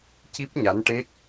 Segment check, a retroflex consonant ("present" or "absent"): present